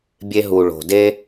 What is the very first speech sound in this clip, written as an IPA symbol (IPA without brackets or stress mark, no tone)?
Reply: bʲ